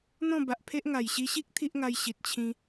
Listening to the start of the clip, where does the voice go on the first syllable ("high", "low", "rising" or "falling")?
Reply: falling